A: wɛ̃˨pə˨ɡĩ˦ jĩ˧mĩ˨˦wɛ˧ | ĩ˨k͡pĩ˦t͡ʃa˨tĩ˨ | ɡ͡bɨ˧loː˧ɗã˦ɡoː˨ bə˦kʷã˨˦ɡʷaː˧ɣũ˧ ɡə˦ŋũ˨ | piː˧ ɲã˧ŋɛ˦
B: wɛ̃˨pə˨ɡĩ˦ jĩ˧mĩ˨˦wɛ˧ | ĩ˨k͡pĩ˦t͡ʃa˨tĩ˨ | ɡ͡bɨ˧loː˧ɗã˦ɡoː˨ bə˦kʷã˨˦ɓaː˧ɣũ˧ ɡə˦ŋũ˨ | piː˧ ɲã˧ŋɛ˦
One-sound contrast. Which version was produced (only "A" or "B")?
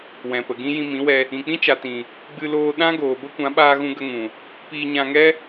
B